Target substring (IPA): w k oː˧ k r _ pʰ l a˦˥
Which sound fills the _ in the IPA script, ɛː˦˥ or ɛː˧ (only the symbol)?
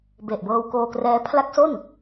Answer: ɛː˦˥